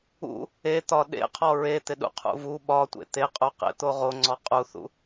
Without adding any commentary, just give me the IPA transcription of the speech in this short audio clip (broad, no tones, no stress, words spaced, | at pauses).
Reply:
ṵ | et̪ɒ ɗḛqʰɔ ɹet̪ɪɗṵqʰṵ vu ɓɒtʷḛ t̪eqʼuqḛt̪o ʁoŋ͡ǀɔ qʼuθṵ